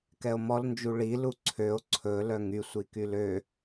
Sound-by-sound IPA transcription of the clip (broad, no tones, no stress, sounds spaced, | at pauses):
k ɛ o̯ m ɔ l n d͡ʒ u ɭ i l u ǀʰ ø o̯ ǀʰ ɵ l œ ŋ y sʷ i k y l ø